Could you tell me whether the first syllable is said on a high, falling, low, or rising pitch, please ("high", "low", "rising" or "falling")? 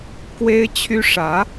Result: high